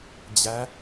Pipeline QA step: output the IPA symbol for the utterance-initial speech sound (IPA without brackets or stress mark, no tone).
d͡ʑ